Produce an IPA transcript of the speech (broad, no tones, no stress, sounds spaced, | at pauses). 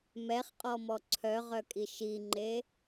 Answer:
m ɛ χ qʼ ɔ m ɔ ǀʰ œ ʁ œ kʼ i ʃ i ŋ͡ǃ e